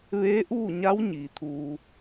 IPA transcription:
ʋeː˧˥ʔuː˥˨ɲa˧˥w ɲiː˩˧t̪ʰuː˧

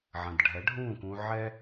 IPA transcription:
ʕɐ̃˩dɖʱɛ˩˥ɖʱũː˥˩kũ˧ ʕɛ˥

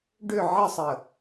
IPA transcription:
ɖʏ ʕəsˤə

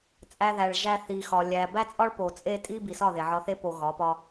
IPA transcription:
t͡sʼæ˦ðæ˧ɭʒæ˦ θi˧xɒ˧ lʲæ˧ bæ˦t͡sʼɒ˦ɭ po˨t͡sʼe˦tʼi˦ bi˨sɒ˦˨ ðe˨ʕɒ˧θe˦ po˨ ɣɒ˨˦pɒ˦

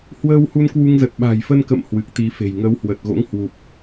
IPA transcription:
hwəː˧whu˧nkwu˧ŋzə˨˩t̚ ɓa̤˨˩jfə˧nkə̰˧˨m hwɨ˨˩k̚t̪i˨˦fe̤˨˩j ŋə˨˦whwə˨˩t̚ɣo̰˧˥ŋ hwu˨˩p̚

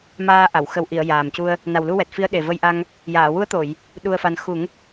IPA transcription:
maː˧ʔa˨˩˨w xə˨˩wʔi˨˩˨ə̯ jaː˨˩mcu˧ə̯ | na˨˩wlu˧wɛ˨˩t̚fi˧˥ə̯ ɗe˨˩və˧jʔa˧ŋ | jaː˨˩˨wu˧˥ə̯t̪o˨˩˨j | ɗu˧ə̯fa˧n xu˨˩˦ŋ

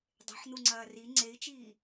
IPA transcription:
dˤe̤ħnuŋ͡ǀɐː ri ŋ͡ǀei̯t͡ʃiː

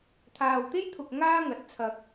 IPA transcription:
t̪ʰaː˨wt̪e˥jt̪ʰʊ˨k̚ ŋaː˥ŋɐ˨˥t̚t͡sʰɐ˧k̚

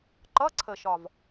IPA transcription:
ǃʌ˧˥˧ǀʰə˨˩ʃɒ˨˩v

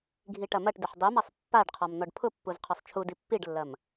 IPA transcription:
ɡʱiʈɐmɐʈdɪħ dˤimasˤ pːaɖqʰɔm n̪ɔɖpʰʊpːuz qʰɔsˤt͡ʃʰudi pːiɖlːɐm

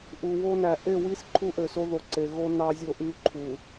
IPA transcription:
ʔu˨wo˦næ˨ ʔe˦˨wi˦s ǃʰu˦ʔø˨so˦ðo˨ ǀe˨ɣo˦ nɑ˦zʲo˦ʔy˦ ǃʰu˨

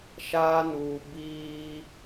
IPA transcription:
ʃaː˦nuː˨ biː˦

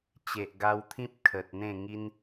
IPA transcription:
t͡ɕe˨ʔɡa˧wt̪ʰĩ˦p̚ kʰə˨t̚n̪ẽ˥˧ ŋi˦n

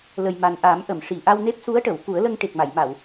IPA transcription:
lə˨˩j ma˨˩nʔa˨˩˦m ʔə˨˩˨mʂi˨˩˨ ʔa˧wne˦˥p̚su˧˥ə̯ʈə˨˩˨w ku˨˩˦ə̯lə˧ŋ ʈe˨˩k̚ma˨˩˨j ma˨˩˨w

